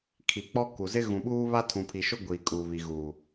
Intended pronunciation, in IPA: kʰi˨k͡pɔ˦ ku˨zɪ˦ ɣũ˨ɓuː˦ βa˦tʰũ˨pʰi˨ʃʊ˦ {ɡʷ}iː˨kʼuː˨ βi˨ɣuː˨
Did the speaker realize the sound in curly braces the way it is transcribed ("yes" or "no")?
yes